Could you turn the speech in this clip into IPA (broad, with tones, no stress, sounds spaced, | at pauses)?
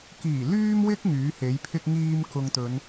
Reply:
k iː˨˩ l yː˧ m w ɪ˧ k̚ ŋ yː˨˥ h e˨˥ j pʰ ɪ˥ k̚ ŋ iː˧ m k ʊ˨ ŋ t̪ ɵ˨˧ n